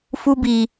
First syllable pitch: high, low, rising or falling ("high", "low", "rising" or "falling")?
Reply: high